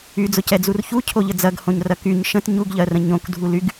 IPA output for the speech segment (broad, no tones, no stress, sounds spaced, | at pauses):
y d͡z ʊ c ɛ d͡z u r ç u cʰ o ʎ ə d͡z ɐ ɡ h õ ɲ r ɐ k y ɲ ʃ ə̃ t ɲ u ɡ ʎ ɜ r ə̃ ɲ õ k dʱ u l y ɡ